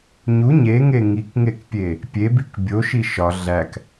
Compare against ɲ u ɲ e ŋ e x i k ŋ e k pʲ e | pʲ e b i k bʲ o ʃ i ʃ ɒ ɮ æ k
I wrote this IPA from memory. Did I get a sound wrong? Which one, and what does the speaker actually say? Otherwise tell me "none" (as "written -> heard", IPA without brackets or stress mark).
x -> ŋ